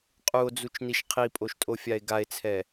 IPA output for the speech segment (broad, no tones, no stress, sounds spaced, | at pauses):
qʼ u o̯ d͡z u t͡ʃ n i ʃ qʰ i pʼ o ʃ tʼ o fʲ a e̯ ɡ a e̯ t͡sʰ ɛ